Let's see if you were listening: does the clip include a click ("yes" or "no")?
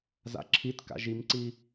yes